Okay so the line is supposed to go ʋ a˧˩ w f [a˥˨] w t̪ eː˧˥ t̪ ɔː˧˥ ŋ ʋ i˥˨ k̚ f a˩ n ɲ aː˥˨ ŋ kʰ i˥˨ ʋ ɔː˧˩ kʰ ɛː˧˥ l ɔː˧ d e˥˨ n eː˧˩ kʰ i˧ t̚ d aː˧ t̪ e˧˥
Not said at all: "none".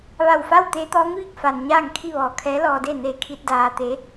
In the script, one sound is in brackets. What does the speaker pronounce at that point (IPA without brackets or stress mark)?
a˥˨